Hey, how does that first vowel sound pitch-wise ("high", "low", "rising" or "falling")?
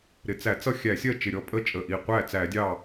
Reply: low